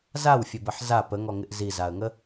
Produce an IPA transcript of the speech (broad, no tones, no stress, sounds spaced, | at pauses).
z a w fʲ ə b ə ħ z a p ə ŋ ɔ ŋ ɪ ʔ z i z a ə̯ ŋ ə